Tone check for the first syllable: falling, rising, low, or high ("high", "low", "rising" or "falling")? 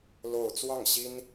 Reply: falling